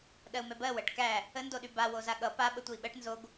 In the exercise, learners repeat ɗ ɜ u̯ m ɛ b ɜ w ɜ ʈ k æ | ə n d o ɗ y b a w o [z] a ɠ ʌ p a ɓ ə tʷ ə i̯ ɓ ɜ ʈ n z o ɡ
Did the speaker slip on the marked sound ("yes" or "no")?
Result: no